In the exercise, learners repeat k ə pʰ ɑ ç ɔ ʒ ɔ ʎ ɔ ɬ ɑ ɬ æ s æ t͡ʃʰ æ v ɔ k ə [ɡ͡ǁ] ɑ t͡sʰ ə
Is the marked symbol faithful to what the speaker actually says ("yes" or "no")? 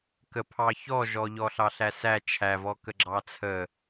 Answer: yes